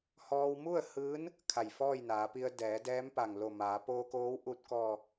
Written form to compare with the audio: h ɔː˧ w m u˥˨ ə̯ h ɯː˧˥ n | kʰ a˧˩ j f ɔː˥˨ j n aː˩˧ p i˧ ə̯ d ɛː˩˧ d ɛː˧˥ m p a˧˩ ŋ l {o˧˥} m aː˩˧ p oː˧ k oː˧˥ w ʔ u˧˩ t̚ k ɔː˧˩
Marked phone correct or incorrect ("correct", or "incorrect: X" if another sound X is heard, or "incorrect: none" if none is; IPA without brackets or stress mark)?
incorrect: o˧˩